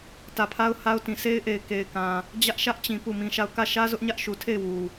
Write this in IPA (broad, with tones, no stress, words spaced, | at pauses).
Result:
tä˨pʰa˦ʊ̯ha˦ʊ̯tĩ˨ sʰe˦ɪ̯ʔe˨ɪ̯ ke˨ɪ̯kã˨ | d͡ʑä˦ʔʃä˦ʔt͡ɕĩ˨ pu˦˨mĩ˦ʃa˦˨ʊ̯ kä˦˨ʃä˦ zʊ˦ʔɲä˦ʔʃu˨tʰe˦˨ɪ̯ wu˨